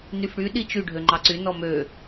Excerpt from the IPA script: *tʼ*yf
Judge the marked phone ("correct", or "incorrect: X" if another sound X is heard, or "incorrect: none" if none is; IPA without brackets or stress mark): incorrect: n